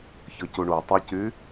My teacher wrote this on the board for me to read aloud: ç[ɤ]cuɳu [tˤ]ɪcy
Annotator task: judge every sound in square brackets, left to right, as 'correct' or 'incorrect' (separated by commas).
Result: correct, correct